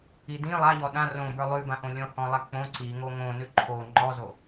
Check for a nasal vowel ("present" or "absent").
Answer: present